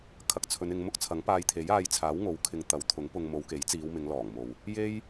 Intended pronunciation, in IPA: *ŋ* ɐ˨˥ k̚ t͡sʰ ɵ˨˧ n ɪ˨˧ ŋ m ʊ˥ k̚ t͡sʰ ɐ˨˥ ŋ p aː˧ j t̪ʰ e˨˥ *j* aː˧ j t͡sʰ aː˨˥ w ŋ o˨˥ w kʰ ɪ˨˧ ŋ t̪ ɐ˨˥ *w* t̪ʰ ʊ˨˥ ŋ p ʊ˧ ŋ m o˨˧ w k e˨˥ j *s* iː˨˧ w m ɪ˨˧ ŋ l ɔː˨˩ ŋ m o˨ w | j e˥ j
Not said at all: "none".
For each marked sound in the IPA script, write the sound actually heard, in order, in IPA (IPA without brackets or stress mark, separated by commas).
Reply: kʰ, j, w, t͡s